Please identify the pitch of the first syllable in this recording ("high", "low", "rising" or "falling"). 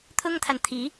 high